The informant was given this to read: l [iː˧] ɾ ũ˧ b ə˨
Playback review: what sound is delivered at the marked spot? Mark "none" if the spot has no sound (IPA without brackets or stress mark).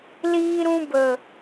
iː˧